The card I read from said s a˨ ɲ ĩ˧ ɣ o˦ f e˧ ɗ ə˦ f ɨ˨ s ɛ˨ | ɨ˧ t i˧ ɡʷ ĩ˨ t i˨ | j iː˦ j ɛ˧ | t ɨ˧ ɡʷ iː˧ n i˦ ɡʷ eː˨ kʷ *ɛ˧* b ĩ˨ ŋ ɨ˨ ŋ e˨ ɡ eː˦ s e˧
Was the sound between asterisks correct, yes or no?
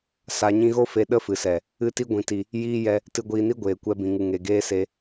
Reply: yes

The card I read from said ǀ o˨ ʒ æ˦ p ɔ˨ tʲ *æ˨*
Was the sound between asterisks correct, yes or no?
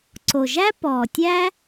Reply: no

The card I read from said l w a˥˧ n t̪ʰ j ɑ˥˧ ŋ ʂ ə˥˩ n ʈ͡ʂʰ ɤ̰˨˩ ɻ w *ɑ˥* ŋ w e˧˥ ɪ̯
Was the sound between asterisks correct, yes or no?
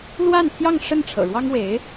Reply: yes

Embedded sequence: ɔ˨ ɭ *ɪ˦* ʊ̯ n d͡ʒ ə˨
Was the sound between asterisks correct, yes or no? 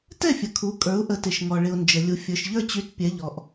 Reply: no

